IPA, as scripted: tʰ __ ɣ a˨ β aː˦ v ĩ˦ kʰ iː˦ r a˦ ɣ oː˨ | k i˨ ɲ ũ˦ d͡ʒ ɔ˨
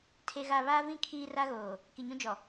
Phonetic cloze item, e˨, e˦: e˨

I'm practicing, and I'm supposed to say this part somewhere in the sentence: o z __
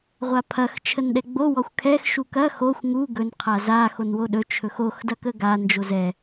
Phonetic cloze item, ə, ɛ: ɛ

